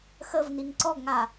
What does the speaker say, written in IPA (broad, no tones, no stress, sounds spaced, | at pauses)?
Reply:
x ə v n i ŋ ǀ ɔ ɡ ŋ a